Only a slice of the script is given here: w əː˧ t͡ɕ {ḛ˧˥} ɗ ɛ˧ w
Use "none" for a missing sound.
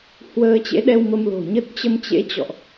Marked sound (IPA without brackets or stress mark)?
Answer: ḛ˧˥